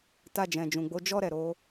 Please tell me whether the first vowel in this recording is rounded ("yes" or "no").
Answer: no